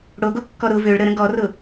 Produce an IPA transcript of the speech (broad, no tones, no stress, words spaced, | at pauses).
ɽoɡokːɔ ɾʊ vøɭ ɾəɾə̃ ɡɔrʊ